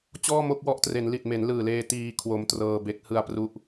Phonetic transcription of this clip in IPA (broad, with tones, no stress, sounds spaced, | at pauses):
t͡ɕ ɔː˥˩ m o˥˩ k̚ w ɔ˦˥ ʔ t r e˩˦ n l i˨˩ t̚ m e˩˦ n l ɯː˨˩ l eː˧ t iː˧ kʰ w o˧ m t r ɤː˧ b e˦˥ k̚ h ɯ˧ a̯ p r u˦˥ ʔ